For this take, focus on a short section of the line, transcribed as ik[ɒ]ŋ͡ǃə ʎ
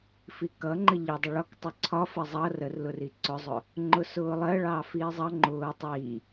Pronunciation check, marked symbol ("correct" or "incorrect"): incorrect